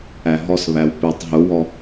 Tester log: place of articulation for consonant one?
glottal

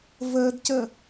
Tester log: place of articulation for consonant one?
labial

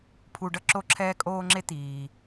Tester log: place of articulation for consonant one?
labial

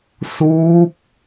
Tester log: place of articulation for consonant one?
alveolar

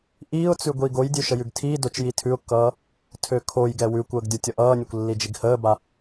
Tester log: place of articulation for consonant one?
glottal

